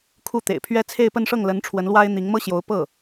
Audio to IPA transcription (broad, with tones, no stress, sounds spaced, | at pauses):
kʰ u˥˩ t̪ ḛ˨˩ ɪ̯ pʰ ɥ ɛ˥ t͡sʰ e˥˧ ɪ̯ p ə˥˧ n ʂ ɤ˥˩ ŋ l ə˧˥ n ʈ͡ʂʰ w ə˧˥ n l w a˥ ɪ̯ n̪ i˧˥ ŋ m ɤ˥ ɕ j o˧˥ ʊ̯ p ɤ˥˩